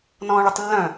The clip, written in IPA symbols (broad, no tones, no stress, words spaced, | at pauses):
nɔ̃ːɭytˤlːœ̃